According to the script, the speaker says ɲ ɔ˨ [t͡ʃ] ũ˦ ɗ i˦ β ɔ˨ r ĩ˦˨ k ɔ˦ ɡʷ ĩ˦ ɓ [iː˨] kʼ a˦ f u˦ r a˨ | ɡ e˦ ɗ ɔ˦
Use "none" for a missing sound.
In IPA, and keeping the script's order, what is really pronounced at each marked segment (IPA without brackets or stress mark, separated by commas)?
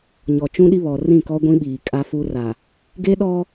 t͡ʃ, iː˨